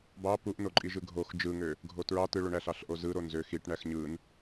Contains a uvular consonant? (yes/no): no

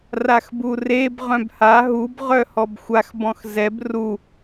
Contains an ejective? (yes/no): no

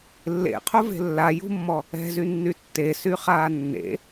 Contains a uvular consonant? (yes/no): yes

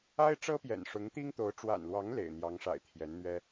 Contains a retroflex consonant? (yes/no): yes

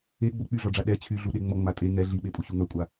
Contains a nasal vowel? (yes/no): no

